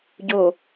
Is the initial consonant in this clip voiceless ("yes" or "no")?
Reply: no